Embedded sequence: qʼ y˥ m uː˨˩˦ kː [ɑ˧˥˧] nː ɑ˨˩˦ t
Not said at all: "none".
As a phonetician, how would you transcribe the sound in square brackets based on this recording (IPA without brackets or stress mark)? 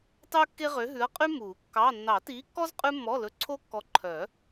ɑ˧˥˧